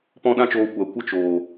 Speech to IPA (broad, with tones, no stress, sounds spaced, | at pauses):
p ɔ̃˦ ɗ ã˦ t͡ʃ oː˧ kʷ a˨˦ kʷ ə˦ t͡ʃ oː˨